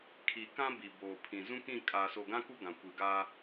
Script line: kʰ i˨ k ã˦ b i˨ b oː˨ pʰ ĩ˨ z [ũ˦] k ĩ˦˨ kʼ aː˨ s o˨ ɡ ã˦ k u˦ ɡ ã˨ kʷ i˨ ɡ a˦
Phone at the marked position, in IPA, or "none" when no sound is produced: ũ˦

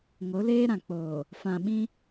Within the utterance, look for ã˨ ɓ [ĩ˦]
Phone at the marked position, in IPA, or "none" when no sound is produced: ĩ˦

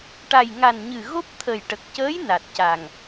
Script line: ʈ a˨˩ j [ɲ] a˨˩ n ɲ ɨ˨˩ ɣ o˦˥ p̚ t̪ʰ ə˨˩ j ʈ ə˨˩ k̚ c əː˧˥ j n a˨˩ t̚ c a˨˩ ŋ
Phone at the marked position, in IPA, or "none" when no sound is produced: ŋ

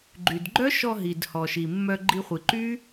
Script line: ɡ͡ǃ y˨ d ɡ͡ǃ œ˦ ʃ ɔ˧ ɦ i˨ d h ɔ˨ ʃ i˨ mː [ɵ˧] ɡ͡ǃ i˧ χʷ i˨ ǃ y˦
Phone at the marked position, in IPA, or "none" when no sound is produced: œ˧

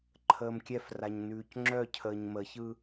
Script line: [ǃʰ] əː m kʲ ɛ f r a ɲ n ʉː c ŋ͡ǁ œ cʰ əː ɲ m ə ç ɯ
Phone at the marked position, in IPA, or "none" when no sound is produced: ǃʰ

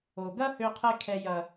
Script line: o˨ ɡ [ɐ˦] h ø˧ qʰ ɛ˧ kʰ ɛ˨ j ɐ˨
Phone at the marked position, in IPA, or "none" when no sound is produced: ɐ˦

